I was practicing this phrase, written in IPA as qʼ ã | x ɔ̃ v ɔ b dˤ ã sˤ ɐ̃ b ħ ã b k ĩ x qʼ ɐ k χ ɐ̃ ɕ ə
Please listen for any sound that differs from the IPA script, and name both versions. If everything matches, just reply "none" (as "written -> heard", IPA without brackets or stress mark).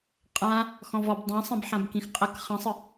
ɕ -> sˤ